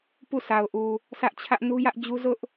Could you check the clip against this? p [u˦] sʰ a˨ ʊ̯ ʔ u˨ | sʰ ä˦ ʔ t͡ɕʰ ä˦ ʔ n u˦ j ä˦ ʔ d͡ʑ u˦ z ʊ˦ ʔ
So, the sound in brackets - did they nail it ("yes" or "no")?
no